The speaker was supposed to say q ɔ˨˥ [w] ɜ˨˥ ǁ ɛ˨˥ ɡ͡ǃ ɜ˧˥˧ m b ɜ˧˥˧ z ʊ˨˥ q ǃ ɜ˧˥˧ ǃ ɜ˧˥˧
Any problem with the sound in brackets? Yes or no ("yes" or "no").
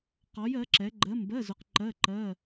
yes